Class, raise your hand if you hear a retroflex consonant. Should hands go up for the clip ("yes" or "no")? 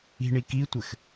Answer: yes